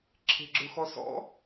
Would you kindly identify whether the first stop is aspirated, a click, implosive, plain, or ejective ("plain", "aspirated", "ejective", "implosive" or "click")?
click